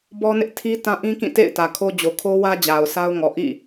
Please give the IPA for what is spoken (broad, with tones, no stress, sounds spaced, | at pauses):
b ɔ˦ n ɪ˦ ʔ tʰ i˦ t ã˦ ʔ ĩ˦ k ĩ˦˨ t ḛ˦˨ ɪ̯ t ä˨ kʰ o˦ d͡ʑ o˨ kʰ o˦ w ä˦ d͡ʑ a˨ ʊ̯ s a˦ ʊ̯ ŋ ɔ˨ ʔ ḭ˦˨